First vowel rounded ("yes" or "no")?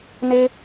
no